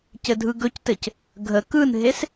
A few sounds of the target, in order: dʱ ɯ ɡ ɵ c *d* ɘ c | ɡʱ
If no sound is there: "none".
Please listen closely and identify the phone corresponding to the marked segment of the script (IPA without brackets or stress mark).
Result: t